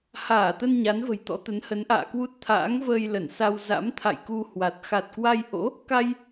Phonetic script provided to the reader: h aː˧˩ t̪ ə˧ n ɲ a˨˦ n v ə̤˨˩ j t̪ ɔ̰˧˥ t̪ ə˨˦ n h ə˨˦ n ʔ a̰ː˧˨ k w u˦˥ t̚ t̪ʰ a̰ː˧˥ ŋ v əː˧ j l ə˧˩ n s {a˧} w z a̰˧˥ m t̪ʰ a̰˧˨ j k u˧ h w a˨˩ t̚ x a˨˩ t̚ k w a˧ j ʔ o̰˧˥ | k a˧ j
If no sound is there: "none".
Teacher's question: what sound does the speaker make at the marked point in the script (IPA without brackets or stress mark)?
a˧